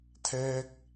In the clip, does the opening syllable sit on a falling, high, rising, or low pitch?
high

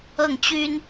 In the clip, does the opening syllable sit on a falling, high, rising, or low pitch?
falling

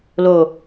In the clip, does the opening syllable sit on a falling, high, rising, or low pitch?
low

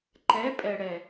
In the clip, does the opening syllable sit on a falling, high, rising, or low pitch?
rising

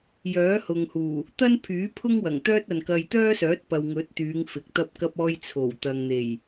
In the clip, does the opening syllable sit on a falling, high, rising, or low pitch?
rising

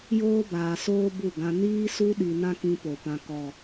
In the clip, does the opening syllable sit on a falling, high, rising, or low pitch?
high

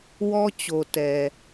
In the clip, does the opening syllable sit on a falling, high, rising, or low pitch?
high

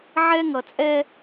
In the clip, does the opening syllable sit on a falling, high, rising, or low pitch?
high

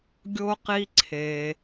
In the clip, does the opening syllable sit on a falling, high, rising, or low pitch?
high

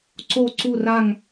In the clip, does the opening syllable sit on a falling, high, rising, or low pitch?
falling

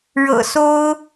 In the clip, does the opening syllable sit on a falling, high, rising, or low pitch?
low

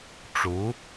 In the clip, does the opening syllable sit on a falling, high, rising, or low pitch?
rising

